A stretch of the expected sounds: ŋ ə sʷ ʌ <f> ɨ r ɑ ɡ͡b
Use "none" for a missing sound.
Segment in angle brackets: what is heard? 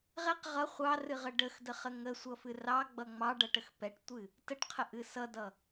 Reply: f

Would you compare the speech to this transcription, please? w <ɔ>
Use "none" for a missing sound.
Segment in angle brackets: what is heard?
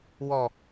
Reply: ɔ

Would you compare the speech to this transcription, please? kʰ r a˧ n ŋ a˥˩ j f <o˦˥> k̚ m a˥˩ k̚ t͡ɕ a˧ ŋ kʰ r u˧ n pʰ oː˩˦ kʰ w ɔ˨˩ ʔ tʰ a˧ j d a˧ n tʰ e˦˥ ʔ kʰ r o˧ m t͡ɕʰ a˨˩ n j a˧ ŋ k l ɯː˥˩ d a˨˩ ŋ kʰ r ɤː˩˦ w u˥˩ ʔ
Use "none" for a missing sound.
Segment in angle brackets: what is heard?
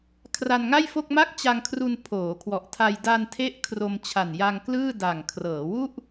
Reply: o˥˩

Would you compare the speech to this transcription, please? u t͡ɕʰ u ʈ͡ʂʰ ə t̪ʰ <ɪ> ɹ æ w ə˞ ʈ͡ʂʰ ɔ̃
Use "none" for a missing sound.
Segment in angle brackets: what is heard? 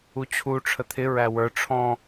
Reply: ɪ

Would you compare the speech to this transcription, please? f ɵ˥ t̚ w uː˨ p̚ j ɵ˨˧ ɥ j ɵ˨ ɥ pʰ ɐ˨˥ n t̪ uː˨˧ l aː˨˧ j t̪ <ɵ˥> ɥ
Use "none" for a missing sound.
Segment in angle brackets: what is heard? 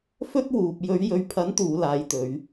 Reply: ɵ˨˧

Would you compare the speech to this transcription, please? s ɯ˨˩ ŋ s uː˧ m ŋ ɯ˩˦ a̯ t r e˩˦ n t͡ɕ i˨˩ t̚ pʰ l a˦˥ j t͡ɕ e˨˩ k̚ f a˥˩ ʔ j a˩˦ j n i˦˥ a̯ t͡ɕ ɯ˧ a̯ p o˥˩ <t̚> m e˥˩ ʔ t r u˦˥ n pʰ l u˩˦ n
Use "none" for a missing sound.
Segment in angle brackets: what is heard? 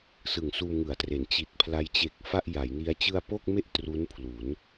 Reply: k̚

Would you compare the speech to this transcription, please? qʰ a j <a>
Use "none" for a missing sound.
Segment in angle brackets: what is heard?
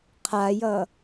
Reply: ʌ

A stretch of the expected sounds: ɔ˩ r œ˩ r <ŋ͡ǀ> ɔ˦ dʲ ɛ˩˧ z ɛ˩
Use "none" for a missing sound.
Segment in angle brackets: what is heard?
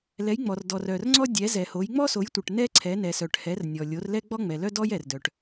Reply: ŋ͡ǀ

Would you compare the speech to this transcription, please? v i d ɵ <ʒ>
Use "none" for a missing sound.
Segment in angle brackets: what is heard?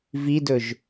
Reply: ʒ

